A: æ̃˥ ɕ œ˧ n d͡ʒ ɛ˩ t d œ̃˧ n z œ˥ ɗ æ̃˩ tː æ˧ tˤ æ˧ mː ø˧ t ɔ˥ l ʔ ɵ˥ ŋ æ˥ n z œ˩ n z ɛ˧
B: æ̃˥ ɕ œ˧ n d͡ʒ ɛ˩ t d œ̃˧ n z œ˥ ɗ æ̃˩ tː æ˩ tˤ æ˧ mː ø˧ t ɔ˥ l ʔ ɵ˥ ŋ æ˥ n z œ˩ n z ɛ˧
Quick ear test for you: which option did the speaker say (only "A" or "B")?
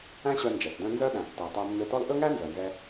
B